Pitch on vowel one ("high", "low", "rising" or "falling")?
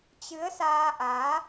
rising